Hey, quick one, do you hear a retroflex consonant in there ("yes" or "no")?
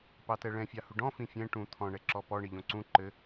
yes